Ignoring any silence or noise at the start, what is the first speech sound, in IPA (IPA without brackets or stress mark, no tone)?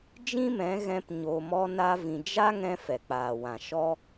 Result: d͡ʒ